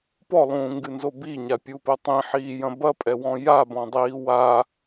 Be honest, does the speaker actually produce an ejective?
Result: yes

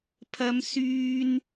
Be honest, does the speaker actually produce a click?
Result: no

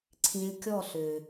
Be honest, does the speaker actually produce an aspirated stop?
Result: yes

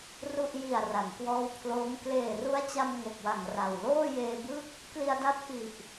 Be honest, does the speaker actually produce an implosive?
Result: no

